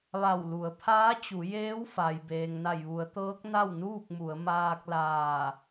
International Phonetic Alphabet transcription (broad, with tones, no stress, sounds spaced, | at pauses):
ʋ a˧˩ w l u˩˧ ə̯ pʰ aː˧˥ t͡ɕ u˩˧ j eː˧˥ w f a˩ j b eː˩ ŋ n a˧˩ j ʋ u˩˧ ə̯ t̪ ɤː˧˥ k̚ n a˥˨ w n uː˥˨ k̚ m u˩˧ ə̯ m aː˧ k̚ l aː˧˩